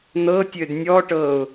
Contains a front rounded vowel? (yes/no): yes